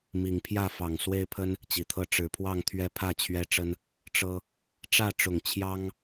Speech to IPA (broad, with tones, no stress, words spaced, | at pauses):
mi˨˩ŋpʰjä˥˨ fɑ˨˩ŋswe˦ɪ̯pʰə˦n | t͡ɕi˨˩t̪ʰɤ˦ ʈ͡ʂɻ̩˨˩pʰwɑ˥˨ŋ t̪ʰɥɛ˦pʰä˥˨t͡ɕʰɥɛ˦ʈ͡ʂə˦n | ʈ͡ʂɤ˦ | ʈ͡ʂä˥˨ʈ͡ʂʊ˨˩ŋ t͡ɕʰjɑ˦ŋ